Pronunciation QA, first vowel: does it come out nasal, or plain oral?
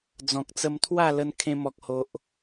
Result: nasal